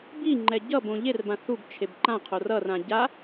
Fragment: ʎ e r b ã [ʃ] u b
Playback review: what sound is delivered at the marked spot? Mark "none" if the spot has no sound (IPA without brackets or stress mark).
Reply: θ